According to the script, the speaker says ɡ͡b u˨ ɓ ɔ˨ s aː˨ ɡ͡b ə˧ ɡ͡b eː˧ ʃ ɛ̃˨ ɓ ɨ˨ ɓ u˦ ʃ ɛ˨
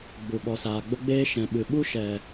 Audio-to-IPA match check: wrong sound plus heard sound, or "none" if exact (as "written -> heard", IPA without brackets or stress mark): none